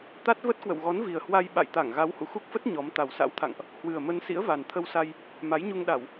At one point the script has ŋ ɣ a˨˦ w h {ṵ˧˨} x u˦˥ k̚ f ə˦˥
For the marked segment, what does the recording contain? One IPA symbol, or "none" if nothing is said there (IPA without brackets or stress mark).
ṵ˧˨